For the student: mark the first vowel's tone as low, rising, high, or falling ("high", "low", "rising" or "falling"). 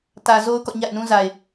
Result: low